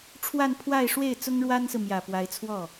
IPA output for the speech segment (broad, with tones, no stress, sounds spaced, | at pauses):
ʈ͡ʂʰ w a˥˧ n pʰ w a˥˧ ɪ̯ ʂ w e˥˩ ɪ̯ t͡s ʊ˥ ŋ ɻ w a˥ n s ɹ̩˨ m j ä˨˩ p w a˧˥ ɪ̯ t͡sʰ w ɔ˥˩